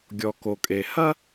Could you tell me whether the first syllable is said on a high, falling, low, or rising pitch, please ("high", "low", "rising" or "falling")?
low